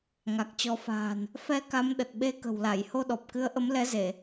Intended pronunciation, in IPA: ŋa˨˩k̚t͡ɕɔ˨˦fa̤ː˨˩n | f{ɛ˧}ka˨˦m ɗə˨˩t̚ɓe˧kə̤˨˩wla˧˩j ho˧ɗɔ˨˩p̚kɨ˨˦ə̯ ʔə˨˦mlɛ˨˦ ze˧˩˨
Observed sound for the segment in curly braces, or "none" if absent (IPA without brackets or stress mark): ɛ˧